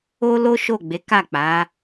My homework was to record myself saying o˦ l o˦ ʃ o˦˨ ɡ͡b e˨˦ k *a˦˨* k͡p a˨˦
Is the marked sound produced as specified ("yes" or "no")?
yes